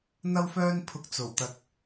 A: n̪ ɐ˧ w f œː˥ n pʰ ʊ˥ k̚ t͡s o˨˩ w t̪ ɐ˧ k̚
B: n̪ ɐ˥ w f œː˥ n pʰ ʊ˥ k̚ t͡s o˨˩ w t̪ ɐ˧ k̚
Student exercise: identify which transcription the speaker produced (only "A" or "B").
B